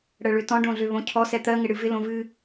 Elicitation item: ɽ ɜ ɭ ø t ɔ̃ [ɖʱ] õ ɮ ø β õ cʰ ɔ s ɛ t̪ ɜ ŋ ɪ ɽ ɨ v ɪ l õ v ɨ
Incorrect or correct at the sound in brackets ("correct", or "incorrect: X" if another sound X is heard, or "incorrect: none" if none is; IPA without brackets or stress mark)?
incorrect: ɖ